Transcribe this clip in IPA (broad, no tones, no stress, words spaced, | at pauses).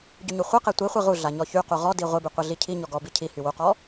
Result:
ɟyɲuχʷiqe tʷiχʷe ʁuɮa ɲɔçyqu ʁɔdi ʁʷiby qʷiɮicʰiɲɔ ɡɔbi cʰihy wuqɔ